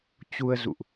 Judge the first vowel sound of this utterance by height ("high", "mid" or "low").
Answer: high